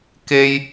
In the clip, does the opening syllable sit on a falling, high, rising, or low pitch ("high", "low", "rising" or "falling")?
high